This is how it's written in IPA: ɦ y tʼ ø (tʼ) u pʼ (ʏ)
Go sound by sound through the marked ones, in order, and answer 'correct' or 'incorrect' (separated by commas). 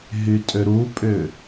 incorrect, correct